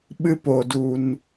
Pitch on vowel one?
high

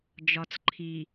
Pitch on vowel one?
low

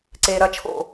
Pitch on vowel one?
low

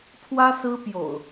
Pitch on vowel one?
high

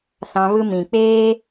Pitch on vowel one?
high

